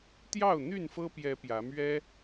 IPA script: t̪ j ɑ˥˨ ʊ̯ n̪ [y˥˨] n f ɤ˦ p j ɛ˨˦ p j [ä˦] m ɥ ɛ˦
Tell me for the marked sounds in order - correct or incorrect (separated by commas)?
correct, incorrect